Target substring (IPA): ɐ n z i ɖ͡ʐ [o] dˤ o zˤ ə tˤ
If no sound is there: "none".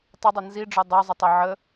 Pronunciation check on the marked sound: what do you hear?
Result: o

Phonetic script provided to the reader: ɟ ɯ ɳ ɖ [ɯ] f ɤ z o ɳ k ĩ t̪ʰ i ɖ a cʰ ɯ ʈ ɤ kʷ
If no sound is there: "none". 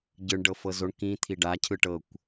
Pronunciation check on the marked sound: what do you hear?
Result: ɤ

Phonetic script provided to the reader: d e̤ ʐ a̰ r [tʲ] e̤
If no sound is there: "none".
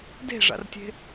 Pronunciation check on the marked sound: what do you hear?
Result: tʲ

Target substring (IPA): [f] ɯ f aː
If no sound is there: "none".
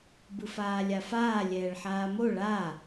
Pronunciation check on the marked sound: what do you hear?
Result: b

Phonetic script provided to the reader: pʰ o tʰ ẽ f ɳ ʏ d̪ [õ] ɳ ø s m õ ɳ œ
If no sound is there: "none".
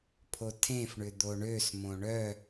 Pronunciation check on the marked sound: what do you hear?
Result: o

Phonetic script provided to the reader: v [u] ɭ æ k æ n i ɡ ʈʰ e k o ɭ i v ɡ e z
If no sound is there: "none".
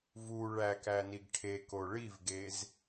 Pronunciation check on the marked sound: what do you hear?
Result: u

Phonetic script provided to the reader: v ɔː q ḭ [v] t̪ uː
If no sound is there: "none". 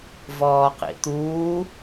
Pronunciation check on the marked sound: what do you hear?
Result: none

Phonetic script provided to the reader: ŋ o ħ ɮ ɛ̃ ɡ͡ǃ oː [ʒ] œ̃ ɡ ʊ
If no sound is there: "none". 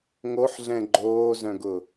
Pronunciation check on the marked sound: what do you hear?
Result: z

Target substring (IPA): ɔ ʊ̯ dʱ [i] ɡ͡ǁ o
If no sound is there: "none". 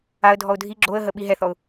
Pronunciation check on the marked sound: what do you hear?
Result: i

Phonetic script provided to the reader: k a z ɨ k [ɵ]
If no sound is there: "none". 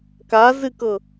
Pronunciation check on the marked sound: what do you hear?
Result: ɤ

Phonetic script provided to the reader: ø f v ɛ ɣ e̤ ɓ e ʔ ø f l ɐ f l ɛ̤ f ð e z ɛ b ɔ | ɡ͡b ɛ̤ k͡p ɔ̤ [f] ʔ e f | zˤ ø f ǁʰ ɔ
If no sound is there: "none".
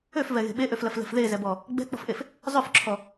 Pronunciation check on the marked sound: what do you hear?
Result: f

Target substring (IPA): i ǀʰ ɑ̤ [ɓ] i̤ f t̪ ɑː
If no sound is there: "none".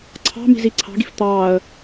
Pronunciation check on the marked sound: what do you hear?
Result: ɡ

